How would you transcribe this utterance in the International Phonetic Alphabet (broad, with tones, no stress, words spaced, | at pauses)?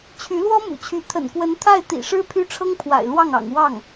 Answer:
t͡ɕʰy˧˥lwɔ˥mṵ˨˩t͡ɕʰy˧˥ t̪ʰə̰˨˩nkwə˧˥n t̪ʰa˥˩ɪ̯t̪ḭ˨˩ʂɻ̩˥ pʰy˥ʈ͡ʂʰɤ˥ŋpʰwa̰˨˩ɪ̯ lwɑ˥˩ŋɑ̰˨˩ŋ wɑ˥˩ŋ